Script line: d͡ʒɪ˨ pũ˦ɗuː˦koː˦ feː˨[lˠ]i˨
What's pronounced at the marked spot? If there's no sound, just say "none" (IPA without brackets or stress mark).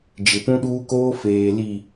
l